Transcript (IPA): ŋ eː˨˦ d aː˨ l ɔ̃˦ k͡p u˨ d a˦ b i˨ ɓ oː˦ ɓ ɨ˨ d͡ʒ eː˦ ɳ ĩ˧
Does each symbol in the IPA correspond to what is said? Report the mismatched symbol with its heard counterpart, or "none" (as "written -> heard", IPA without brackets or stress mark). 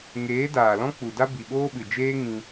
ɳ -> ŋ